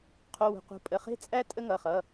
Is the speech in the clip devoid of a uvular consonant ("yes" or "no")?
no